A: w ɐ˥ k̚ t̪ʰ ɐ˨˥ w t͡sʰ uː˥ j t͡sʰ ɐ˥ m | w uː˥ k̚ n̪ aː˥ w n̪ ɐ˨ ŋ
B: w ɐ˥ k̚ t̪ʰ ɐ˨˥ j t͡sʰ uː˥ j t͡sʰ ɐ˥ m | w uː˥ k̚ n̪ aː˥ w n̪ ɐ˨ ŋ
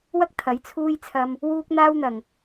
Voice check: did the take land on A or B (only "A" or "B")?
B